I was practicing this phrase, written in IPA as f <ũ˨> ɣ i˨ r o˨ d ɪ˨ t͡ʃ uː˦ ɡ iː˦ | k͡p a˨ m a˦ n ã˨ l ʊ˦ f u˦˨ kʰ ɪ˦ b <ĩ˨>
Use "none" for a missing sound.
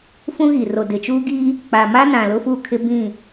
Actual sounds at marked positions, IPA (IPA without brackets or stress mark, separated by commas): ũ˦, ĩ˦˨